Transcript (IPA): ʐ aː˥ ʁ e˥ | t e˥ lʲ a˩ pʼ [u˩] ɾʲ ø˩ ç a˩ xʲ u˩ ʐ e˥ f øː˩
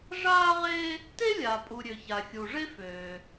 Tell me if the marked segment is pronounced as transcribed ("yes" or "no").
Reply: yes